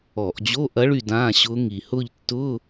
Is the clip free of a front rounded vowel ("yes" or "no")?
no